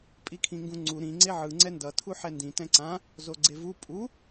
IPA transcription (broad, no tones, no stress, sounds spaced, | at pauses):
pʼ i kʰ ĩ ŋ ɡ ũ ŋ͡ǀ u ɾ ĩ ŋ͡ǀ e ʕ ɯ ŋ͡ǀ ɛ n d ʌ tʰ u ħ ɛ n d ĩ t ɛ̃ ǀ ã | z o ɡ͡ǀ e v u pʼ u